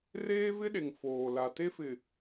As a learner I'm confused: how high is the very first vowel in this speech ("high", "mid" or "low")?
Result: mid